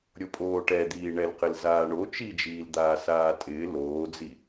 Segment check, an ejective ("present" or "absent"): present